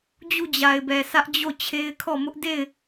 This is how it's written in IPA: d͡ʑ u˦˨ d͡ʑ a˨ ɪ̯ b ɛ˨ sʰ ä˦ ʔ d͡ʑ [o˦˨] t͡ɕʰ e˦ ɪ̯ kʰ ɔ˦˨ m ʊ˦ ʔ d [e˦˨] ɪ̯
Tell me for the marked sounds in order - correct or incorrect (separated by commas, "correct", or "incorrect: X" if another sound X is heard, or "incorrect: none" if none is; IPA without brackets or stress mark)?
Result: correct, correct